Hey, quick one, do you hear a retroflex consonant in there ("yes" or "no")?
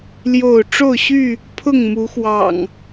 yes